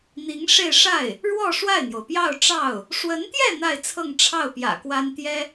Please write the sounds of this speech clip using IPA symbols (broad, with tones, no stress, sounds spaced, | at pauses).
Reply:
n̪ i˧˥ ŋ ʂ e˥˧ ɪ̯ ʂ a˥˩ ɪ̯ | ɻ w ɔ˥˧ ʂ w a˥˩ ɪ̯ n̪ j o˩ ʊ̯ p j ɑ˥˧ ʊ̯ ʈ͡ʂ ɑ˥˩ ʊ̯ | ʂ w ə˧˥ n t̪ j ɛ˥˧ n̪ a˥˧ ɪ̯ t͡sʰ ɤ˥˧ ŋ ʈ͡ʂʰ ɑ˥˩ ʊ̯ p j ä̰˨˩ k w a˥ n t̪ j ɛ˥